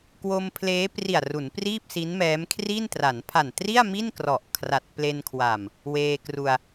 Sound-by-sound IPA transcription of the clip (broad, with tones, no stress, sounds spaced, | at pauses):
k w o˧ m pʰ l eː˦˥ p r i˨˩ a̯ r u˩˦ n p r iː˥˩ p̚ s i˦˥ n m ɛː˦˥ m kʰ r i˥˩ n t r a˩˦ n pʰ a˨˩ n t r i˥˩ a̯ m i˥˩ n k r ɔ˨˩ ʔ kʰ r a˨˩ t̚ p l e˧ n kʰ w a˨˩ m | w eː˧ k r u˧ a̯